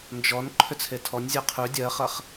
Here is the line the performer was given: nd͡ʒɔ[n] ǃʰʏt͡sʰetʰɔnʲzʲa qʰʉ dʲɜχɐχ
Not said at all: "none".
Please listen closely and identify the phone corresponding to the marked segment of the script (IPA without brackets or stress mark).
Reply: n